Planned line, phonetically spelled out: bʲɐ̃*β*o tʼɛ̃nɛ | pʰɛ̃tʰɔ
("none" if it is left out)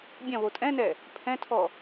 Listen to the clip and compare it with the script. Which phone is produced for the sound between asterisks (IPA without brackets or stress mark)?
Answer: β